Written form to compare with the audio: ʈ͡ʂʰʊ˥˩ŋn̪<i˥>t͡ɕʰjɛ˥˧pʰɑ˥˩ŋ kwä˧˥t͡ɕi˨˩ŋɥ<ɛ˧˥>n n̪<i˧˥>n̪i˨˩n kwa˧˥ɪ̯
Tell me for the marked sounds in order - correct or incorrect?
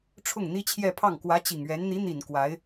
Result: correct, correct, correct

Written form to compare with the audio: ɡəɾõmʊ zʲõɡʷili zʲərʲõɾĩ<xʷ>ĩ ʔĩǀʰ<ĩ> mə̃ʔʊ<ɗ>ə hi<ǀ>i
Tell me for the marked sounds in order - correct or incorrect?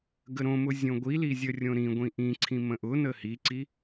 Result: incorrect, correct, incorrect, correct

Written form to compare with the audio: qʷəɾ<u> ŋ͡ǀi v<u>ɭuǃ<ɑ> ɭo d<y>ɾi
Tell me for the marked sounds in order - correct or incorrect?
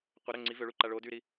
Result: incorrect, incorrect, incorrect, correct

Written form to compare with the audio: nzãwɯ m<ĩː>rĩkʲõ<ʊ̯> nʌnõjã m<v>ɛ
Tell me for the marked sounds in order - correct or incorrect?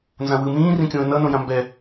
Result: correct, incorrect, incorrect

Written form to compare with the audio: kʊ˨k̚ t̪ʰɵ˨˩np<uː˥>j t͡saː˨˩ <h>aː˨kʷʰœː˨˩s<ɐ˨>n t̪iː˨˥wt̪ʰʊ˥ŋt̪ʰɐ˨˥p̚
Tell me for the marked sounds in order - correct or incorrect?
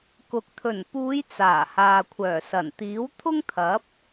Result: incorrect, correct, incorrect

